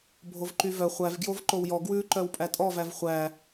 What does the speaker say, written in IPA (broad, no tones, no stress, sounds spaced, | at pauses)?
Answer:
bʱ o v ǃ y v œ χʷ æ v ɡ j o v ǃ o w j ɔ ɡ w ʉ ǃ œ w pʼ æ tʼ ɔ v æ v χʷ æ